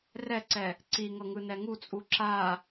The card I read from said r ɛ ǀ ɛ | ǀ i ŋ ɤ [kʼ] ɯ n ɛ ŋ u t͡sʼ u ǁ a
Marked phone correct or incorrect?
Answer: incorrect